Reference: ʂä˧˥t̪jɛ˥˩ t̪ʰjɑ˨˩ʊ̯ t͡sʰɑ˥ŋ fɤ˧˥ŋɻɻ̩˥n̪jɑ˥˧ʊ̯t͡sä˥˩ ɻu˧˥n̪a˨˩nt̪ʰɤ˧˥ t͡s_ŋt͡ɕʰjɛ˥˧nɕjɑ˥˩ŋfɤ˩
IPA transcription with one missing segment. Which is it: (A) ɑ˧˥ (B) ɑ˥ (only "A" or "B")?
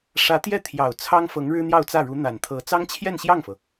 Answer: B